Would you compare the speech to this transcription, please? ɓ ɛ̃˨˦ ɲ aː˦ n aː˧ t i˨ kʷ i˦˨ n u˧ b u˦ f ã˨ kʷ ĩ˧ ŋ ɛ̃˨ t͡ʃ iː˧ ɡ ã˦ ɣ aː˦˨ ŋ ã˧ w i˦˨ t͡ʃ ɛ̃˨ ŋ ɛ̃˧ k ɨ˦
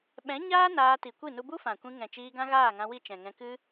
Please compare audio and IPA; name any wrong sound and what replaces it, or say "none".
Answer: none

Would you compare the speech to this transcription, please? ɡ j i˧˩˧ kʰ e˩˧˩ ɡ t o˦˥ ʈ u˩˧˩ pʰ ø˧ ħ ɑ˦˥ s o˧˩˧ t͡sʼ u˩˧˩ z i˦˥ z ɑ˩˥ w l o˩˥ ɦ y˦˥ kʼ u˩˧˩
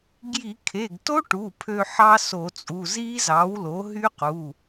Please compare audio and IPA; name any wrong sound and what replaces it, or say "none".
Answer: kʼ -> q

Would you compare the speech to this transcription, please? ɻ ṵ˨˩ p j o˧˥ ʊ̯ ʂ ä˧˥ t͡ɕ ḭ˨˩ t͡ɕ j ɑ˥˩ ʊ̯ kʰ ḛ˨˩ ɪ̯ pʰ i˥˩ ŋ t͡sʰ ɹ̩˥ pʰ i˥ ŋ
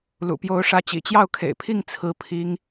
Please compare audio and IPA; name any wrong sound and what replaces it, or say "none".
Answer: ɻ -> l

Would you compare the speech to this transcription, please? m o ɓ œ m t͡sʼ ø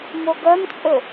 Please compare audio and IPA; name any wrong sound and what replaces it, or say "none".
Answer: ɓ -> ɡ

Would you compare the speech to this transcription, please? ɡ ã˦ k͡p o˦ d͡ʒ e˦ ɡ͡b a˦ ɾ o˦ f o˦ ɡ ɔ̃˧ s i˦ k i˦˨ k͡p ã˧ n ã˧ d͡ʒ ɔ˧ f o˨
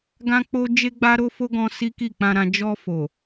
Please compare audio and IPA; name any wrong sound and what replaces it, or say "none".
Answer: n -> ɾ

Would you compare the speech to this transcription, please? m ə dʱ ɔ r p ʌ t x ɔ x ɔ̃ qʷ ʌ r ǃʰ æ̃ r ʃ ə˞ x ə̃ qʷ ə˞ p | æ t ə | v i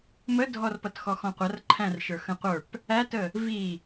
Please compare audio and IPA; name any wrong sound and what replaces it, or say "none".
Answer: none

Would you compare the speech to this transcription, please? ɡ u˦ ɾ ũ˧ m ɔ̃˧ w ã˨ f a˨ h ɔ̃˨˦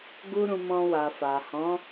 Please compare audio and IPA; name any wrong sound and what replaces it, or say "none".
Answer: ã˨ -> a˨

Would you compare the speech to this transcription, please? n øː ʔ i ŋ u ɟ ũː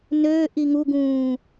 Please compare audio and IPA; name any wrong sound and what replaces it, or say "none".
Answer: ɟ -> ɡ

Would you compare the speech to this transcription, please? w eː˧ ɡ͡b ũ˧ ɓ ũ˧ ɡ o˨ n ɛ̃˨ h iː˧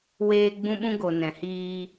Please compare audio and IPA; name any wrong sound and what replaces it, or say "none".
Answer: none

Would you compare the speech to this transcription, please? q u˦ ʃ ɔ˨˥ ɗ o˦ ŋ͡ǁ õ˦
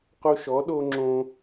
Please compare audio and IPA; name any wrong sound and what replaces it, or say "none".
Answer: none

